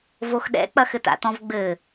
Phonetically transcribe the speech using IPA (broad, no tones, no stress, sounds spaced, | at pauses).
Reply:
v o x ɗ ɛ̰ k͡p ɐ x ɘ t a̰ t ɔ̃ v ɡ͡b ɘ